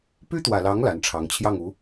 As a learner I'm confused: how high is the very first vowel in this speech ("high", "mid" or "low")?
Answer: high